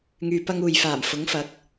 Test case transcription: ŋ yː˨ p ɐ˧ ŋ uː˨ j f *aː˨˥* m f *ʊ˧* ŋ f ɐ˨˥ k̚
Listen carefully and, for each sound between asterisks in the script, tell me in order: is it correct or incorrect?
incorrect: aː˨˩, incorrect: ʊ˨˥

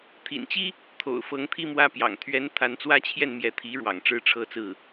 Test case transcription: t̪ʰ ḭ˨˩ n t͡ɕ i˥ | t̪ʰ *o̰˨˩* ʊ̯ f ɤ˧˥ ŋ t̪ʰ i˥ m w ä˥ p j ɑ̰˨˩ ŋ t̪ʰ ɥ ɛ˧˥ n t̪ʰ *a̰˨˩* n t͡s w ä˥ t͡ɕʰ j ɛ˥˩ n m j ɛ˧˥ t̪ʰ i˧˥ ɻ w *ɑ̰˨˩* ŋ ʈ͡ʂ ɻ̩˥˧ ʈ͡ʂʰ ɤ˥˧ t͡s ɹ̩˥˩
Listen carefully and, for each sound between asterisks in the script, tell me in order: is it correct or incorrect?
correct, incorrect: a˧˥, correct

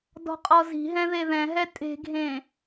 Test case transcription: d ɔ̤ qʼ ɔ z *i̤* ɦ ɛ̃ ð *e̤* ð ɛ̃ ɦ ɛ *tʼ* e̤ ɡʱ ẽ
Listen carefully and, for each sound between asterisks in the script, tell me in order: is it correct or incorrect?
correct, incorrect: e, correct

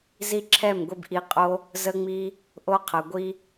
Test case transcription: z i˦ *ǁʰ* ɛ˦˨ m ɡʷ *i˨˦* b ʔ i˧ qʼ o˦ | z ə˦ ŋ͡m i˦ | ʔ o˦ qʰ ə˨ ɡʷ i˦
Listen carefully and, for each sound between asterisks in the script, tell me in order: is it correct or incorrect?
correct, incorrect: i˧

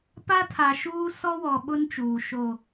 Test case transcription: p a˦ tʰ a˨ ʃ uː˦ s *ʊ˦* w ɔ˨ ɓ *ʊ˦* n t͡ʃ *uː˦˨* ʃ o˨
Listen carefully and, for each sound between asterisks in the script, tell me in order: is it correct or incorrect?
incorrect: ɔ˦, correct, incorrect: uː˨

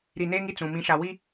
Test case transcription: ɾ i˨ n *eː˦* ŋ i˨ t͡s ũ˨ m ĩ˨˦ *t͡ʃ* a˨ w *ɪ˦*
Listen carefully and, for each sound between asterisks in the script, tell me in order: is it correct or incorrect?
correct, incorrect: ʃ, incorrect: i˦

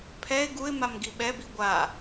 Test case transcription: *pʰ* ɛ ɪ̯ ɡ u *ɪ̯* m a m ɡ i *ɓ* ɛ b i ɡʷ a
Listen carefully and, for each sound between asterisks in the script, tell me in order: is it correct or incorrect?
correct, correct, correct

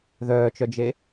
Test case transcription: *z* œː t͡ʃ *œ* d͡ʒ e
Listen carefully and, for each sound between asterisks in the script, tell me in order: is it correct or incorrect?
incorrect: ð, correct

